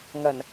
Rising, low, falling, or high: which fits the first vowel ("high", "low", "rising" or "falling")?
low